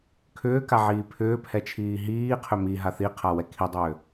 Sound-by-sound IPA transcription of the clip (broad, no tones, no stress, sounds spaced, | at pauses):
kʰ ʏː k a ʕ iː pʰ ʏː pʰ ɛ t͡ʃʰ iː ɦ iː qʰ ʏ m i ɦ a θ i qʰ a w ɛ kʰ i dˤ ʏː